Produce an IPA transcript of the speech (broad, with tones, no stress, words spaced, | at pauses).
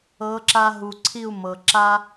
ɤ˨˦ǁa˧ɦu˨ǀʰi˦˨u̯ mɤ˨ǁa˦